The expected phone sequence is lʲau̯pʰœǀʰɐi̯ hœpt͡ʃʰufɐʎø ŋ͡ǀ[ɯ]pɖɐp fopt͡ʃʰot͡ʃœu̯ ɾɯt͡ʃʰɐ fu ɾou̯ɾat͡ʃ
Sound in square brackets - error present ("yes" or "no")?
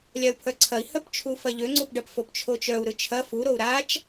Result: yes